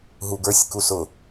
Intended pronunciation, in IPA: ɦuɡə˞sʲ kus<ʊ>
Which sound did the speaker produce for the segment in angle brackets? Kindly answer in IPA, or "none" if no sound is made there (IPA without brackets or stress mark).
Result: ʊ